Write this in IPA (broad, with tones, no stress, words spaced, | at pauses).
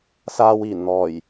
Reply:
saː˧wiː˨˩nn̪ɔː˨˩j